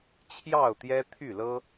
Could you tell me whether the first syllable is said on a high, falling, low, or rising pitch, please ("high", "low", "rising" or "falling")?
falling